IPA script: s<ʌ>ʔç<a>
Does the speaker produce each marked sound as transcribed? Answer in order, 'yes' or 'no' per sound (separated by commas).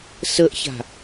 no, no